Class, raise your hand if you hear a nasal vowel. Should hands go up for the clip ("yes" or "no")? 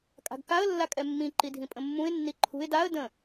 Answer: yes